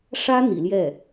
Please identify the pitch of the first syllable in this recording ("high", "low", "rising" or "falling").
high